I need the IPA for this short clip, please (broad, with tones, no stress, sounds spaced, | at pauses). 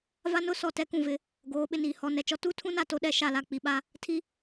v a˦ n ʊ˦ s ɔ˨ t ɛ˦ k ũ˨ v ɪ˨˦ | ɡ oː˨˦ ɓ ɪ˨ n iː˨ h ɔ˨ n ɛ˨ t͡ʃ ɔ˦ t u˦ tʰ ũ˦ n a˨ t o˦ ɗ ɛ˨˦ ʃ a˨ l a˨ k͡p i˨ ɓ a˦ | tʰ i˦